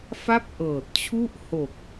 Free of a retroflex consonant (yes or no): yes